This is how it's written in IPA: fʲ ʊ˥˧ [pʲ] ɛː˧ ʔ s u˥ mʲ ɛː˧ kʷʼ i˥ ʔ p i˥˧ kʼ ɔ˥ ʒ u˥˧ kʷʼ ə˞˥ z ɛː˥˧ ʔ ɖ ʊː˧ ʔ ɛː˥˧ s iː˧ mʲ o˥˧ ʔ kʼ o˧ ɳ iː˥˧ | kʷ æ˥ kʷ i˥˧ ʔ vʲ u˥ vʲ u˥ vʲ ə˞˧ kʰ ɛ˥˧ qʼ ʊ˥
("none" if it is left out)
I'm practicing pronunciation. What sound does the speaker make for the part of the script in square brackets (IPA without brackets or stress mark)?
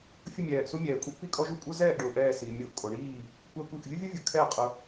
mʲ